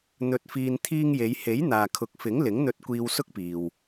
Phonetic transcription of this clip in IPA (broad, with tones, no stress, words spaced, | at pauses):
n̪ɵ˧t̚fiː˧n t̪ʰiː˧ŋje˨˧j he˨˥jn̪aː˨kʰʊ˨˥k̚fɪ˨˥ŋ lɪ˨˥ŋn̪ɵ˧t̚kʷiː˧w sʊ˥k̚piː˨w